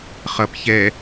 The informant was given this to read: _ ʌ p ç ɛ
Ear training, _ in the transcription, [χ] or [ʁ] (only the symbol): χ